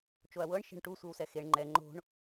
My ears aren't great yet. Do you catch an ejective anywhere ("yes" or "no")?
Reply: no